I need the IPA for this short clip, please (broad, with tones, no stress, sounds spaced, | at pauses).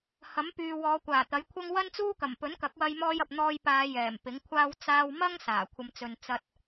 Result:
h ɐ˨˥ m p yː˨ w ɔː˨˧ kʷ aː˨˩ t̪ ɐ˨˥ j kʷʰ ɐ˥ ŋ w ɐ˥ n t͡s uː˥ k ɐ˨˩ m p ɵ˨˥ n k ɐ˨˥ k̚ w ɐ˧ j m ɔː˧ j ɐ˨ p̚ n̪ ɔː˧ j p aː˨˧ j ɛː˨˩ m p ɪ˨˥ ŋ kʷʰ aː˥ w t͡s aː˧ w m ɐ˥ ŋ s aː˨˩ kʷʰ ɐ˧ m t͡s ɵ˧ n t͡s ɐ˧ t̚